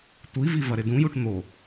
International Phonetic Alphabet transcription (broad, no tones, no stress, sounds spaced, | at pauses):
tʷ i v i v ɐ ɾ ɪ d ũ j u ʈ n̪ o